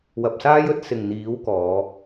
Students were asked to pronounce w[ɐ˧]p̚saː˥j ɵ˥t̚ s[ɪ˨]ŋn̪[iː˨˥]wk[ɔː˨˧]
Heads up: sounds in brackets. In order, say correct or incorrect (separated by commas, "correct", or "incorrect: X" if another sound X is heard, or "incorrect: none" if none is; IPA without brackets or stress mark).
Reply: incorrect: ɐ˨, correct, correct, correct